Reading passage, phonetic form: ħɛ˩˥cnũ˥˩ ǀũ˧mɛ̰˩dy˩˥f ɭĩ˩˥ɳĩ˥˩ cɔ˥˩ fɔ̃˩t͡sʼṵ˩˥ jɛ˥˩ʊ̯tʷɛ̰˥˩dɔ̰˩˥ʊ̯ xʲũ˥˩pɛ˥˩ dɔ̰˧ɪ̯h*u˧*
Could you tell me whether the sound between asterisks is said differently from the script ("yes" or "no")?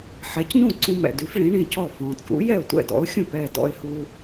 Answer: no